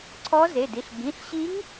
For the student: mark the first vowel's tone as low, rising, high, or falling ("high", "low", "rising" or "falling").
rising